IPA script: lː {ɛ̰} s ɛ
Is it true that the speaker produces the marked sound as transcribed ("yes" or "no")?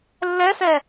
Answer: no